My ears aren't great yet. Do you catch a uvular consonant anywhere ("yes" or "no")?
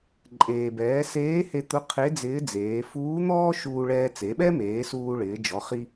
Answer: yes